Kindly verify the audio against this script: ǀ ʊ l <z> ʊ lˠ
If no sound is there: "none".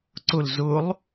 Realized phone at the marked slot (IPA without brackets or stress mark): z